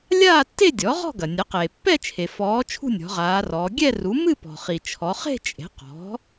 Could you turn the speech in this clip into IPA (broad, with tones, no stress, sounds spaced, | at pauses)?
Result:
lʲ aː˥˧ tː e˥˧ dʲ ɔ˩˥ ʁ ɔ̤˥˧ ɡ ɐ˩ nʲ ɐ˩˥ q eː˩ pː ɛ˥˧ t͡ʃʰ e˩ f ɔː˩˧ t͡ʃʰ ṳ˥˧ nʲ ɔ̤˩˧ ʁ aː˩˧ r ɔː˩˧ ɡʲ ɛ˥˧ r u˩˥ m ɨ˥˧ p ɔ̤˩ χ i˩ t͡ʃʰ ɔ˩˧ χ e̤˥˧ t͡ʃʼ e̤˩˥ q ɔ̤˩˥